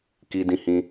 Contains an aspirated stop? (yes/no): no